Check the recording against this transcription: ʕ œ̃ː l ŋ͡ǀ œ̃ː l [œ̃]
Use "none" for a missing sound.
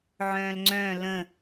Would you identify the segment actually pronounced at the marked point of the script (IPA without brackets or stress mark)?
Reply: ə̃